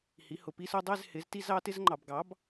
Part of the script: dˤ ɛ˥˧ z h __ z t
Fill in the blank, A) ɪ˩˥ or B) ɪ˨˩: A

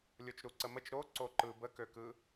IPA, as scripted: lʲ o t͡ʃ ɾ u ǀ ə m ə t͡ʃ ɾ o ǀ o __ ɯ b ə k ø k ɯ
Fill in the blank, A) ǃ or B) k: A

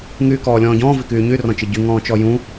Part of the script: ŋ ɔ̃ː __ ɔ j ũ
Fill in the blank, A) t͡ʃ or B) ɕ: A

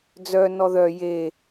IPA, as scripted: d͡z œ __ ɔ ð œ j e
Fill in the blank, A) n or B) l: A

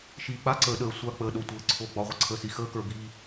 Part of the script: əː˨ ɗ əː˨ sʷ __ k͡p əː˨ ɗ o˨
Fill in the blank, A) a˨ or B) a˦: A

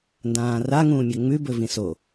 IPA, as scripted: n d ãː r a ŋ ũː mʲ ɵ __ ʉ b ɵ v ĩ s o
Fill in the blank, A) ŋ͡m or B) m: A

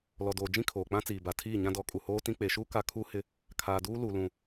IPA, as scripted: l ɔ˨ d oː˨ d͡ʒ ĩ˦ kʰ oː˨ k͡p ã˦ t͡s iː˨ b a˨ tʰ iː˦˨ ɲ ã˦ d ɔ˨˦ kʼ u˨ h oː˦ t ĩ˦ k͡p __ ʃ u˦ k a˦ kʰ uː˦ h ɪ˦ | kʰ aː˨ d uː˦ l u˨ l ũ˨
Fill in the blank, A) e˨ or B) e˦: A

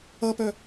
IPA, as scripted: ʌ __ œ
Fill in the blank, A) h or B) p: B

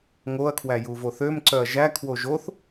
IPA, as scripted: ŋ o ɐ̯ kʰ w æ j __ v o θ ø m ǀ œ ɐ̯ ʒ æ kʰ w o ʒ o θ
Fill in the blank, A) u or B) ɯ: A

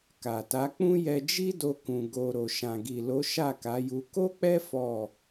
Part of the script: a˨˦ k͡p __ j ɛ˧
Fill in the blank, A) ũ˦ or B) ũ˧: A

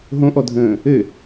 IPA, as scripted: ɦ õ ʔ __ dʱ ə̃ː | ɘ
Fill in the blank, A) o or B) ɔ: B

